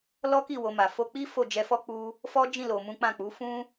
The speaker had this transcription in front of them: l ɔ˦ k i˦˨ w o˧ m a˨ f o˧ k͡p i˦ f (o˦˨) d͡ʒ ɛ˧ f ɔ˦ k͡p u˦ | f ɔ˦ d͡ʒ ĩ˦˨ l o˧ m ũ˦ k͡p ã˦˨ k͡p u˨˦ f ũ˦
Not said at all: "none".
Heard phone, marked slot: o˦˨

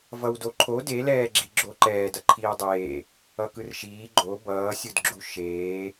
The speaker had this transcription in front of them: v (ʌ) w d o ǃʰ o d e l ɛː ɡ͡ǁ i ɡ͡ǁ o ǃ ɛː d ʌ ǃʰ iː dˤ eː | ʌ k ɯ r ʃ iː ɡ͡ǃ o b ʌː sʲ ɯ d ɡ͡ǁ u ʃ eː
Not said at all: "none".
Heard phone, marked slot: ʌ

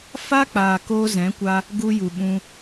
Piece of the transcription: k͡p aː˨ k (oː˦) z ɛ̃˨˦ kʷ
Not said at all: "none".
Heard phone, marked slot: oː˧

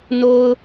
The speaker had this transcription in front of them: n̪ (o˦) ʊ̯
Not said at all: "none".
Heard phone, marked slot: o˦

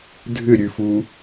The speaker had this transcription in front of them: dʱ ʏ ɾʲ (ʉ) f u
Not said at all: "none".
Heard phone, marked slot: ʉ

